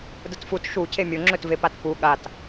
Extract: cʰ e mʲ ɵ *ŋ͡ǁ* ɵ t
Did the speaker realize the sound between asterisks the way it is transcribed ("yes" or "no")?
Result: yes